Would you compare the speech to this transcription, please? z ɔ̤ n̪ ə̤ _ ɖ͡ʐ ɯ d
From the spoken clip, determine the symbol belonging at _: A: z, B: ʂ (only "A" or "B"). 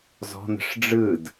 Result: B